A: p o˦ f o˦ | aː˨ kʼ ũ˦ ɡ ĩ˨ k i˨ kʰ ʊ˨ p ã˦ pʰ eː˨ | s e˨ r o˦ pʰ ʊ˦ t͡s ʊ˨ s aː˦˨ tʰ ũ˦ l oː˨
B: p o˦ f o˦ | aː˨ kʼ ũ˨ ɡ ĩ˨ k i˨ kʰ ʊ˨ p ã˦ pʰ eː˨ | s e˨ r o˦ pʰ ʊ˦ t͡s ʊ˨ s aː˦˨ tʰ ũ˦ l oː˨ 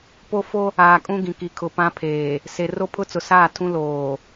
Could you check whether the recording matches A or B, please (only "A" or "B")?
A